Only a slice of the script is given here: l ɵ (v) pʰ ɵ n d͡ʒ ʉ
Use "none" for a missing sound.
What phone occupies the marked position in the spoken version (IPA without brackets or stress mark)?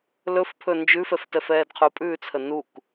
f